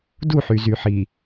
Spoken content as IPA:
du˦˨ħy˨zy˨ħi˨

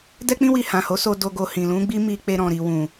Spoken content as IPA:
dɛ˦k͡pĩ˦wi˧ hã˨ho˨˦so˧ do˧ɡo˧ hĩ˨lũ˨˦ɡ͡bi˦ mi˧k͡pe˧ ɾɔ̃˨ɾi˨ wũ˨

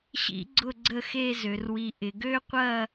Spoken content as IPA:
ɕḭ˥ɡ͡ǀʊ˥˧ɡ͡ǀə˥˧ xe˥˧zø˩˧rwi˧ ʔɪ˩˧ɡø˥qʷɐ˥˧

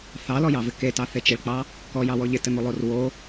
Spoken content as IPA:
θɑlɔjɑvɪ ketɑθe t͡ʃɪɭk͡pɑ | kɔjɑwɔ ʎɪtɘn̪olˠor wo

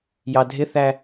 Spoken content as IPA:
jɑdʱɪθæ

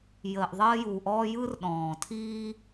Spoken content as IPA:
jəː˨ʔðˤəː˦ju˨ʔɔː˦ jɯ˦rɗɔ̃ː˨ tʰiː˦

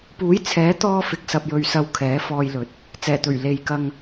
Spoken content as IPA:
puː˨˥jt͡sʰɛː˨˥t̪ɔː˧ fɪ˨k̚sɐ˨p̚jɵ˨ɥsɐ˨˧w kʰɛː˨˥fɔː˧jlɵ˨˥t̚ | t͡sɛː˨˩t̪ɵ˨˩ɥ le˨j kɐ˧ŋ

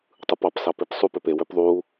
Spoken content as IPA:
tˤɯpɑp sɑpepsˤup øpe wøpðˤu

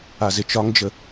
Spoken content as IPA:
azɪt͡ʃɒŋd͡ʒə

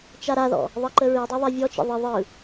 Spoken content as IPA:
t͡ʃaɾaðɔ̰ | ðˤɜǃəɹidˤa ðˤavʲɔt͡ʃə̰ ðˤə ðˤɯ

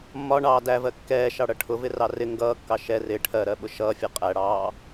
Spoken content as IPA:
mːɒɳɑː dævɜ kːɛːʃɑɽʌ ʈʰʊvɪrɑ rɪ ŋɡʌːkːɑ ʃɛ rɪ ʈʰɜɾɜɓʊ ʃʌːfʲɜ qʼæɽɑː

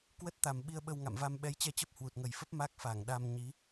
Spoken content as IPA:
kwə˦˥t̚t̪a˨˩m ɓi˧ə̯ɓə˧wŋa̰˧˨mva˧m ɓɛ˨˦jt͡ɕɛ˧t͡ɕə˦˥p̚ hwu˨˩t̚ŋə˨˩jfə˦˥p̚ ma˦˥k̚fa˧˩ŋɗa˧m ɲi˨˦

